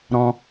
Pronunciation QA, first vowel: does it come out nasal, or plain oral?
nasal